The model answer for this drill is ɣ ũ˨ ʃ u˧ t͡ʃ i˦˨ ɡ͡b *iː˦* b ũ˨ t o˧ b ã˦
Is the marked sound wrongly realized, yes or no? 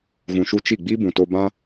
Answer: yes